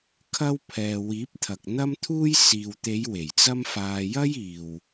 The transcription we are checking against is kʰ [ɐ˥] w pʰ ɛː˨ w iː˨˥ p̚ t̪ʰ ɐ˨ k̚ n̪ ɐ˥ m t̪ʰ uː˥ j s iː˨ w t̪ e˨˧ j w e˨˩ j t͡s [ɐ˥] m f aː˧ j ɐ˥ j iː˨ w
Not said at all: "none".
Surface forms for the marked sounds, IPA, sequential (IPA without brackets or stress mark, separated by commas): ɐ˥, ɐ˥